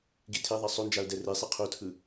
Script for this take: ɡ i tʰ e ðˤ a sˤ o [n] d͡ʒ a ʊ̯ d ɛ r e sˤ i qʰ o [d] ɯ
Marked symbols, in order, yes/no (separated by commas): yes, no